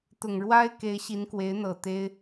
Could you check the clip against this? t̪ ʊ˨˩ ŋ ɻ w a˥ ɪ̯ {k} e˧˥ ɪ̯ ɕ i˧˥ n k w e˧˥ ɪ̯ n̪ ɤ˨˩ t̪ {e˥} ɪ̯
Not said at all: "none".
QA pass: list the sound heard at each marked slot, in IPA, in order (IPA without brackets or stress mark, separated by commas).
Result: k, e˥